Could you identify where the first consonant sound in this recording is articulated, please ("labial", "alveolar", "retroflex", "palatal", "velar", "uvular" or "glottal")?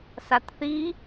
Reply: alveolar